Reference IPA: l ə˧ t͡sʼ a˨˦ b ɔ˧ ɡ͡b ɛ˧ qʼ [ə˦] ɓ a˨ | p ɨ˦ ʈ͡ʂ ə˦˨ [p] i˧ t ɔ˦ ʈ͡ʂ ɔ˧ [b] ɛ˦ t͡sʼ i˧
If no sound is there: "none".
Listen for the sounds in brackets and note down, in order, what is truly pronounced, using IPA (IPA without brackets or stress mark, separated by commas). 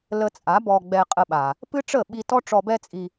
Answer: ə˧, ɓ, b